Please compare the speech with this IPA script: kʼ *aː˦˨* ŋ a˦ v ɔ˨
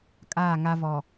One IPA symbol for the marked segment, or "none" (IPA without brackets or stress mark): aː˦˨